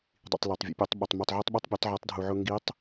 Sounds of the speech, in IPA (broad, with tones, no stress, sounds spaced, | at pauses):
dˤ ḭ˩ tˤ l e˩ tˤ vʲ ə̰˩˧ pʲ œ˩˧ tˤ ɓ ʊ˩ tˤ m u˩ tˤ ʕ u˧ tˤ ɓ œ˧˥ tˤ bʲ u˩˧ tˤ ʕ i˩˧ tˤ dʱ u˩ ʕ ʊ˧ ŋ ɡ i˧˥ tˤ